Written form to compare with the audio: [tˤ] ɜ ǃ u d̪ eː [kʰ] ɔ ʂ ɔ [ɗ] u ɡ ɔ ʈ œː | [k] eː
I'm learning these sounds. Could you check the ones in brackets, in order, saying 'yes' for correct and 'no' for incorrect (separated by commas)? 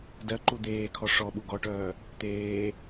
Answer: no, yes, no, no